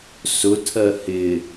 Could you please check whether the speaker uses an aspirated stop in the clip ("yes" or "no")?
yes